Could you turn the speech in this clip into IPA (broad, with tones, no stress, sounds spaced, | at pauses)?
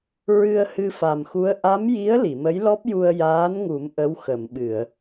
ɹ ɨ˧ ə̯ h ɨ˧ f a˨˩ m x u˧˥ ə̯ ʔ a˧˥ m j i˧˥ ə̯ l i˨˩˨ m ə˧˥ j l ɔ˦˥ p̚ j u˧ ə̯ j aː˧˥ n ŋ u˨˩˦ m ʔ ə˧˥ w x ə˨˩˨ m ɓ ɨ˨˩˨ ə̯